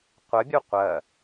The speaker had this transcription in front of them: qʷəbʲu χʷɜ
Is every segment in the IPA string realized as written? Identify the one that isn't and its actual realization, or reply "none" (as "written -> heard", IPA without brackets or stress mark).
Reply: χʷ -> qʷ